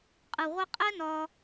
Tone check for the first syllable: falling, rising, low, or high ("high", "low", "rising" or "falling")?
low